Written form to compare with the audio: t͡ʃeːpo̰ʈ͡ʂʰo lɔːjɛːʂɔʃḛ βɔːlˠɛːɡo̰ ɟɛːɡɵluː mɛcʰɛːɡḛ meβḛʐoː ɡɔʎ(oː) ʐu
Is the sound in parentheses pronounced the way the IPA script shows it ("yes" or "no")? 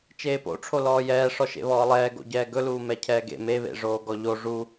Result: no